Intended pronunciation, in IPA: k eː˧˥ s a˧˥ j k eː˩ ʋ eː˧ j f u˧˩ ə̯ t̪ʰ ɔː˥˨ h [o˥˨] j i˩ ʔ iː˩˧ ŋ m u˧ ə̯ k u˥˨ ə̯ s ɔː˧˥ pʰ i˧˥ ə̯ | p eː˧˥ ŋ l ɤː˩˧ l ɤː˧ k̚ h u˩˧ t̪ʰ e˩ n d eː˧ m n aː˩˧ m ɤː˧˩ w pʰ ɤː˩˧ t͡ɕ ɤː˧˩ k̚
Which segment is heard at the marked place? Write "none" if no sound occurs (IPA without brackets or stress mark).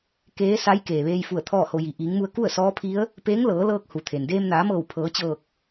o˧